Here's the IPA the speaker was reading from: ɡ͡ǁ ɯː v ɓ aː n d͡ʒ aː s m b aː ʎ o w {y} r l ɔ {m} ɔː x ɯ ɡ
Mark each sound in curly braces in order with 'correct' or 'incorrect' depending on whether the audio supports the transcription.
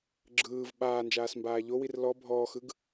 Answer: incorrect, incorrect

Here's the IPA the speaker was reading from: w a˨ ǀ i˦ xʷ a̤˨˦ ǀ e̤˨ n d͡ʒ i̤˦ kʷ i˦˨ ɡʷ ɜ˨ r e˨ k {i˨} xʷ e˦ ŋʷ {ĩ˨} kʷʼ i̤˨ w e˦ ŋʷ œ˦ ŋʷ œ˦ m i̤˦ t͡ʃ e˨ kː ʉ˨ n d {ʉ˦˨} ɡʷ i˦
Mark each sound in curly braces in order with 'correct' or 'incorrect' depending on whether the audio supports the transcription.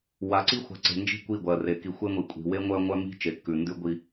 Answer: correct, incorrect, incorrect

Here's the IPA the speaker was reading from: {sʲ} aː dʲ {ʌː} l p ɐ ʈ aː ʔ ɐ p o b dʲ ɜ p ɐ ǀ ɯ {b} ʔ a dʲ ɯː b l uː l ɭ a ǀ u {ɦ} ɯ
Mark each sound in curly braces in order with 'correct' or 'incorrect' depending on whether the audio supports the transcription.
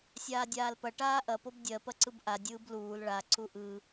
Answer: correct, incorrect, correct, incorrect

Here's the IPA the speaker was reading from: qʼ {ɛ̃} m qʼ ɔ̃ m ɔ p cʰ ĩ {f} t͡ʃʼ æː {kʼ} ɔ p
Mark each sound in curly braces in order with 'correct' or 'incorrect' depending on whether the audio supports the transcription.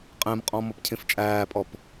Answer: correct, correct, incorrect

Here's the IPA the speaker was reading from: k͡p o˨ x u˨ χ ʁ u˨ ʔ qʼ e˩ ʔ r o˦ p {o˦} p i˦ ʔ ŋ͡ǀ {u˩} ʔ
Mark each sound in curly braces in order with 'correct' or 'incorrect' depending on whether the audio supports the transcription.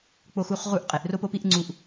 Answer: correct, correct

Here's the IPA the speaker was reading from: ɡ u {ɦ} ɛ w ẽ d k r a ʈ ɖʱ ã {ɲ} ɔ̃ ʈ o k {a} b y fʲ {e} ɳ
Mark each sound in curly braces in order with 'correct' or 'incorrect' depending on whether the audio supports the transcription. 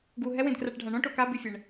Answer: correct, incorrect, correct, incorrect

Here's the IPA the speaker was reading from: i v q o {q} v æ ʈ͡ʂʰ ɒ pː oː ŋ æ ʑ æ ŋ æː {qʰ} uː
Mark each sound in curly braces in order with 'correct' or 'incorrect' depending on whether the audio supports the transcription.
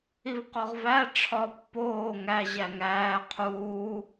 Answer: incorrect, correct

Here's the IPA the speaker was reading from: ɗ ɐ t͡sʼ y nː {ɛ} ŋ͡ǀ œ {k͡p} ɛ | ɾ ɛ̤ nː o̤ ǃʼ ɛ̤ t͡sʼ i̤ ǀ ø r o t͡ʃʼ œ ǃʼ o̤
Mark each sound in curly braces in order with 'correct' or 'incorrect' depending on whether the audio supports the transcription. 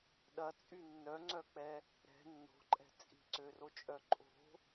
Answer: incorrect, correct

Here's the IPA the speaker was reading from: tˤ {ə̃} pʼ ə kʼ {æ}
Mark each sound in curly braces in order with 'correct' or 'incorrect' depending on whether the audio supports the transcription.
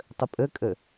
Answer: incorrect, incorrect

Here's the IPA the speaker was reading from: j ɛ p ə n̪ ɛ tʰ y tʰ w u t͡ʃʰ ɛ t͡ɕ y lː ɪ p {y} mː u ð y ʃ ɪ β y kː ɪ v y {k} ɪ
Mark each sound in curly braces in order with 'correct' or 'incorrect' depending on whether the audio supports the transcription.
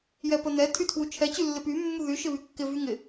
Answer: correct, incorrect

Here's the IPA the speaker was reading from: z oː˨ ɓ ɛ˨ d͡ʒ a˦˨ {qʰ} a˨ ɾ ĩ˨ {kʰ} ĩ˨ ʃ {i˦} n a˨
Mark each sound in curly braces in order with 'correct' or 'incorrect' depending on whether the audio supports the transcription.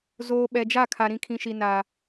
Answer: incorrect, correct, incorrect

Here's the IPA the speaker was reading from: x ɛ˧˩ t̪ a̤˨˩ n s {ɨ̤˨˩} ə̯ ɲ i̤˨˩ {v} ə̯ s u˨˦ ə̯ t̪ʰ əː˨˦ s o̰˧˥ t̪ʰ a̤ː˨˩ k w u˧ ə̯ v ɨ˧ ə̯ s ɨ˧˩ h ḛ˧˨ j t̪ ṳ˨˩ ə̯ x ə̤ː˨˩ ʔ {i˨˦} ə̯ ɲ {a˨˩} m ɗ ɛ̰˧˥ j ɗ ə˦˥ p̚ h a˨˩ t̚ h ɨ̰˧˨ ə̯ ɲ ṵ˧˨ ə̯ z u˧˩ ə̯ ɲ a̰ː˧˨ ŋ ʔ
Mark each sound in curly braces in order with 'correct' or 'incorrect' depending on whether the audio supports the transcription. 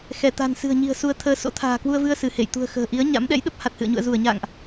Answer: correct, incorrect, correct, incorrect

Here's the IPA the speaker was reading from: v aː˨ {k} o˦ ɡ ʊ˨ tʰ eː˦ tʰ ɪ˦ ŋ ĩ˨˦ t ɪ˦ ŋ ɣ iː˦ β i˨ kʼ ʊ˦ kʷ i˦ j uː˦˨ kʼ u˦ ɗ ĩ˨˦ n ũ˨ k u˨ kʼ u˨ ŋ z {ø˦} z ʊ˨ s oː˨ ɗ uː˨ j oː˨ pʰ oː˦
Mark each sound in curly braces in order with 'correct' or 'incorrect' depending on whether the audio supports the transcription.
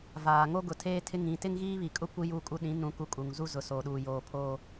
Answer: incorrect, incorrect

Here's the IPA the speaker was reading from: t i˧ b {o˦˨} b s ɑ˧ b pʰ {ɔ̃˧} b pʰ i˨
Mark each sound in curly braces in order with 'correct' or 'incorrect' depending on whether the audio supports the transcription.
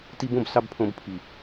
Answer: incorrect, incorrect

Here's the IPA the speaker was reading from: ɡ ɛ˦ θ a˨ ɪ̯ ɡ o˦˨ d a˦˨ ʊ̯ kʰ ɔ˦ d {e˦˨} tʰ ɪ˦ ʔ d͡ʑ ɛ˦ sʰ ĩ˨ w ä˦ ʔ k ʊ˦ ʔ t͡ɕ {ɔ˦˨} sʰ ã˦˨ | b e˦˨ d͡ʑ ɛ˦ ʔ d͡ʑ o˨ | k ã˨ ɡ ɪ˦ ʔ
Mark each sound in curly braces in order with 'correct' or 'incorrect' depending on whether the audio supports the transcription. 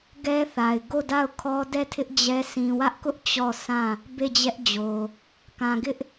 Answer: incorrect, correct

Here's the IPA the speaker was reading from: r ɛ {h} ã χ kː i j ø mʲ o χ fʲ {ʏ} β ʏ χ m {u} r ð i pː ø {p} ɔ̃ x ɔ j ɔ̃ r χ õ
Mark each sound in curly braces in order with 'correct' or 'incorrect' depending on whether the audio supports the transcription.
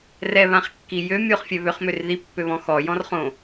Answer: incorrect, incorrect, incorrect, incorrect

